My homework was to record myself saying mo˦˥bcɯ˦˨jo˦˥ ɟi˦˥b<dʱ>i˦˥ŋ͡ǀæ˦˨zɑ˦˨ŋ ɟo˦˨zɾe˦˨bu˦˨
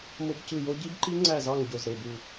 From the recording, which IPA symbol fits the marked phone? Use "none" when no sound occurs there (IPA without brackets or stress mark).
ǃ